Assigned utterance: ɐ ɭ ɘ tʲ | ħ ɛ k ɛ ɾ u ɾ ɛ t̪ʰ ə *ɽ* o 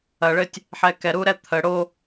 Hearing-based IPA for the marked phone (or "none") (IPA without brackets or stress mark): ɽ